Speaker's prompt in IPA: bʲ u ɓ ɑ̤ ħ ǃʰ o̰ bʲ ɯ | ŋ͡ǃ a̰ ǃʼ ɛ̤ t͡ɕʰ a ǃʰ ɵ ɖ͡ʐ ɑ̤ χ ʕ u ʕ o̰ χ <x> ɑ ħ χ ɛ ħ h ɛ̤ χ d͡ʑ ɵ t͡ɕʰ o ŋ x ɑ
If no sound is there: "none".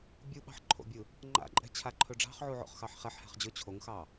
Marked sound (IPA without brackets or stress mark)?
x